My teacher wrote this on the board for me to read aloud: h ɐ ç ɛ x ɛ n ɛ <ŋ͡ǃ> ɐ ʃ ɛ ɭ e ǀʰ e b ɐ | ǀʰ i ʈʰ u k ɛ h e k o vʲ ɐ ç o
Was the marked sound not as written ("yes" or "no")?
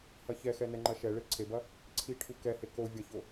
no